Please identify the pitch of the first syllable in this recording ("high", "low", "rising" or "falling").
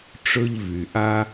high